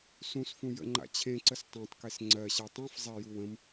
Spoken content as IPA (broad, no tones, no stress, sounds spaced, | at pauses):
s ũ s f ũ j ə̰ ŋ͡ǃ a̰ t͡ɕʰ ẽ ǀ ə s tˤ ẽ tˤ k e s ŋ͡ǀ ɜ ɕ a tˤ ɛ̃ f zˤ ɛ j u w ə̃ m